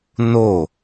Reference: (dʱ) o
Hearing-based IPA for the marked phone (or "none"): n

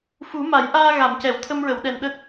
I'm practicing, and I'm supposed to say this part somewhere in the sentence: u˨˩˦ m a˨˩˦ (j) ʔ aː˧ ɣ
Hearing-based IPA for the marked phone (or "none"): j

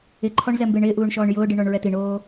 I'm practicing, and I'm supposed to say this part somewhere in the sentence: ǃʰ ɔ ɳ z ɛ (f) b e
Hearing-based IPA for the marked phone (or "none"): m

